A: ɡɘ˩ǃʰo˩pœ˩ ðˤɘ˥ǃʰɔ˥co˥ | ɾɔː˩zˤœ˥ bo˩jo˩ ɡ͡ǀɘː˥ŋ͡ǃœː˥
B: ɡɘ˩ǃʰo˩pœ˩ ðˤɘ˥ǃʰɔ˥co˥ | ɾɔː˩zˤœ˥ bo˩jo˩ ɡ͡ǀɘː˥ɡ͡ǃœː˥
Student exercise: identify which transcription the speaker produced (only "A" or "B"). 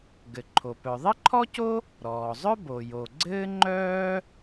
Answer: A